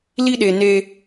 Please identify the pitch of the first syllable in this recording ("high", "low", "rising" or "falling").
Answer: high